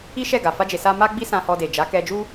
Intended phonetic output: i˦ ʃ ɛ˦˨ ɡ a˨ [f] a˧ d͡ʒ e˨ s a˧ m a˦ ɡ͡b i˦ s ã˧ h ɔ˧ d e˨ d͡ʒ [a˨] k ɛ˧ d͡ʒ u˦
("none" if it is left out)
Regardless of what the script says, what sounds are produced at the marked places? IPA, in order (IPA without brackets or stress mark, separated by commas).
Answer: f, a˨˦